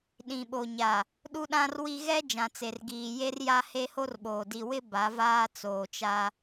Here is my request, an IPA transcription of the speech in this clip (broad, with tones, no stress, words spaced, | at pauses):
ɗĩ˨ɓo˨ɲa˨ | ɗu˦ɗã˦rwi˦ ɣɛ˦ d͡ʒã˨t͡se˨rɡiː˨ je˦r ja˦he˦ho˦rɓoː˨ di˨wɪ˦ ba˨˦vaː˦t͡soː˨t͡ʃa˦